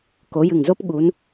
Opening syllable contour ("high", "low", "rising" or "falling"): rising